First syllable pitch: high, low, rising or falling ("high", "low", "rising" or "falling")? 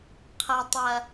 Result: low